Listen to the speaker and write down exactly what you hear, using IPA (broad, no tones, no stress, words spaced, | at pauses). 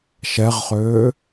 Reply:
ʃɛʁχøː